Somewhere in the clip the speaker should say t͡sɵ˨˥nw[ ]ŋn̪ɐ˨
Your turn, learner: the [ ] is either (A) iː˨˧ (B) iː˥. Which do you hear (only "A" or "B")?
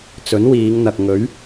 A